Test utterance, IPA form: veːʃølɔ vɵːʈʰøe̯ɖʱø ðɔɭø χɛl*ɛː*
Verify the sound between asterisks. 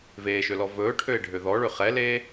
incorrect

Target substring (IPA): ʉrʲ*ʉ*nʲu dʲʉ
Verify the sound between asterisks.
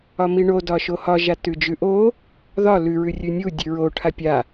correct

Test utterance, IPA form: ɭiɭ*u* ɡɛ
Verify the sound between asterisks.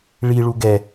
correct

